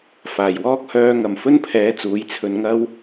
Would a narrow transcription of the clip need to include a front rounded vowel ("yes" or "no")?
yes